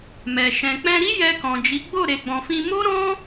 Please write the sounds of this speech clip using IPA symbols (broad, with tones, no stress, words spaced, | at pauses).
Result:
mɛ˨ ʃɛ̃˨k͡pɛ̃˧ɾi˦ jɛ˧kɔ̃˨d͡ʒi˨˦ ɡ͡bo˦˨ ɾe˨ɡ͡bɔ̃˨fĩ˧ mo˦ɾɔ̃˦